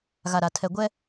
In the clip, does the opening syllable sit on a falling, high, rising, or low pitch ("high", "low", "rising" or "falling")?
low